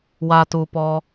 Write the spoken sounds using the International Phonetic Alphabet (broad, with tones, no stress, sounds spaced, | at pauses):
w a˨ t u˨ p ɔ˧